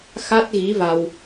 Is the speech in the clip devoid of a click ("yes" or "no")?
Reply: yes